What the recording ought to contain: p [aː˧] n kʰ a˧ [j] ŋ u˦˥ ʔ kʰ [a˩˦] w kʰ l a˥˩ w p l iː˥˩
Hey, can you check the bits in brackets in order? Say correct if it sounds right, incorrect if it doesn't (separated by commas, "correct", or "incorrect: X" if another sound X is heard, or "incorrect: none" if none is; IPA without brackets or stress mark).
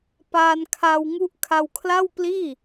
correct, incorrect: w, incorrect: a˧